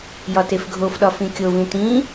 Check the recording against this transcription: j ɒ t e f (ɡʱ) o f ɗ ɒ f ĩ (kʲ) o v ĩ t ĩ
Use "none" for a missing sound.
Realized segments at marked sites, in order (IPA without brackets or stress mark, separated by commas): ɡʱ, kʲ